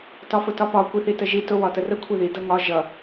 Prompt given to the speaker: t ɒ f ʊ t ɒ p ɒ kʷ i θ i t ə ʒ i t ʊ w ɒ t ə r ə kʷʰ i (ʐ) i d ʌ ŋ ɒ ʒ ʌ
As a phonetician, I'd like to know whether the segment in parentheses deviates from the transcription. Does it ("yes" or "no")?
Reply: yes